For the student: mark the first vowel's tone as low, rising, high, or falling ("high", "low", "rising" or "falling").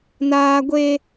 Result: high